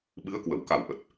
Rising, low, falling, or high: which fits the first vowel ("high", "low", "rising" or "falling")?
rising